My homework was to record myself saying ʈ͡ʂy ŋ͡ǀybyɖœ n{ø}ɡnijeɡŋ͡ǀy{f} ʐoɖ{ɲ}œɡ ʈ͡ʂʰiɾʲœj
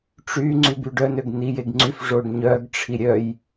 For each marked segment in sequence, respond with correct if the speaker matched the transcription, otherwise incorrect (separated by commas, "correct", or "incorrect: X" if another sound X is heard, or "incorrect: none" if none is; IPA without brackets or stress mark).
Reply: correct, correct, correct